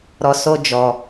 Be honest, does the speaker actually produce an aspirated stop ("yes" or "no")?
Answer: no